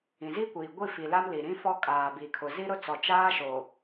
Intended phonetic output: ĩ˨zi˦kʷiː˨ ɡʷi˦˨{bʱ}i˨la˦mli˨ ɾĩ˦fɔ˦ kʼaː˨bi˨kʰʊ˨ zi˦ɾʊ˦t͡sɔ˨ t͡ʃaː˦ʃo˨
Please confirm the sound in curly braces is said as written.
no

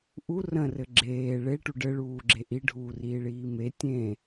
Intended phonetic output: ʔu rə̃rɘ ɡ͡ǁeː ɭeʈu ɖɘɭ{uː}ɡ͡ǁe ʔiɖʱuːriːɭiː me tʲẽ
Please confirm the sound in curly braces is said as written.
yes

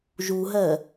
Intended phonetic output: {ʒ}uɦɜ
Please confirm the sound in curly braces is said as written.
yes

